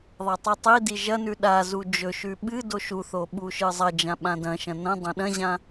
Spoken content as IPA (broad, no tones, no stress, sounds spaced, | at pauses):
ðˤ a tˤ ɨ tˤ i d i ʒ ɐ n ʉ ɗ a z u d͡ʒ ɵ ʃ ʉ ɓ ɨ d o ʃ u θ o ɓ u ʃ ɨ zˤ ɐ d͡ʒ ã ɓ ã d ɐ̃ ʃ ɐ̃ n ɐ̃ dˤ ɐ̃ ɗ ɐ̃ ʑ ã